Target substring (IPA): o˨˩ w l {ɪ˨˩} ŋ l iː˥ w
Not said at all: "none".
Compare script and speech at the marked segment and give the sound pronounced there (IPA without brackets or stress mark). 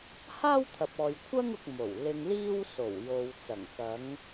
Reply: ɪ˧